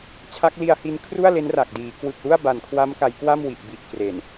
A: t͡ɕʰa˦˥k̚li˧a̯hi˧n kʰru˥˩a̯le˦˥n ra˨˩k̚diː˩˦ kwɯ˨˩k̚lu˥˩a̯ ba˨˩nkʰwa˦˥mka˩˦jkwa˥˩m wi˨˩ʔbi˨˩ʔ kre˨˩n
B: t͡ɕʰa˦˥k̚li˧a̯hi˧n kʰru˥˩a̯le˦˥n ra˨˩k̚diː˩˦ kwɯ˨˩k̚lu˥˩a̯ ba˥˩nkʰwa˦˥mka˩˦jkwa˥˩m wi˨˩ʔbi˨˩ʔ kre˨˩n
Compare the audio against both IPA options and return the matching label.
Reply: A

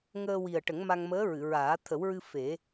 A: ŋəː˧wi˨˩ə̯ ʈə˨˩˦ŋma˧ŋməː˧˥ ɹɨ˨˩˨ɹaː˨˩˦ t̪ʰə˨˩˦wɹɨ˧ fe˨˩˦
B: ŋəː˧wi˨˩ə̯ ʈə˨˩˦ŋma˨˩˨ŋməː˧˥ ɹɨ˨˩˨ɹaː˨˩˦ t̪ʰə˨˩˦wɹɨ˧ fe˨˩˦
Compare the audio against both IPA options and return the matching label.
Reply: A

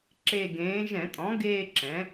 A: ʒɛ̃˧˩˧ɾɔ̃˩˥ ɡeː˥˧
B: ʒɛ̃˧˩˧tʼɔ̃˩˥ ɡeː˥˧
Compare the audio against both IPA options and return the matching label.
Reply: B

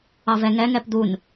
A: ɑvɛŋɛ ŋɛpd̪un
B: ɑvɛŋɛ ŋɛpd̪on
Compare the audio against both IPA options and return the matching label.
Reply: A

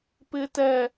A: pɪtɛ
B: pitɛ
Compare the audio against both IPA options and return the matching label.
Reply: A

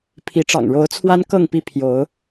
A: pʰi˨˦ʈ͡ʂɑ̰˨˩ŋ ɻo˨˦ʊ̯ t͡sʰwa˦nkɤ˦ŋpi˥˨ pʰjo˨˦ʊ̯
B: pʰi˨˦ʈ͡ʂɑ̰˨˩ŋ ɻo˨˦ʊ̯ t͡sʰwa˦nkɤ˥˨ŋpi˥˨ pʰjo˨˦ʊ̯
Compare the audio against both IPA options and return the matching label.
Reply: B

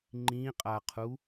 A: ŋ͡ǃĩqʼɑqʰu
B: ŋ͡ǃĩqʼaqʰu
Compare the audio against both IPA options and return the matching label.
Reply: B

